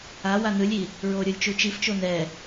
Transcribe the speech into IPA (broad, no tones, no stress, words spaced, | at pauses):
a wanɯlʲi | ɹoɾʲolʲ t͡ʃut͡ʃift͡ʃo nɛ